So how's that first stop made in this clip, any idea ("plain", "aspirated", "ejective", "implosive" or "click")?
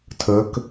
aspirated